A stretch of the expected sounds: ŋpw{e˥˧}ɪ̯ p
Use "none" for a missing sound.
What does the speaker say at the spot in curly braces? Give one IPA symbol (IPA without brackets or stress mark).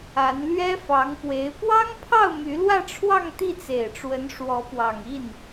e˧˥